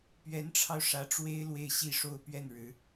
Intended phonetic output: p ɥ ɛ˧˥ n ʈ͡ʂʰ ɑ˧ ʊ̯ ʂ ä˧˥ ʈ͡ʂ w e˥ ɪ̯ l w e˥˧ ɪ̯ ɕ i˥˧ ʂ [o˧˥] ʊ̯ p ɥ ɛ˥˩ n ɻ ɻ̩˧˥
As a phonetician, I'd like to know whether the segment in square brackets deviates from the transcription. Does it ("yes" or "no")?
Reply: yes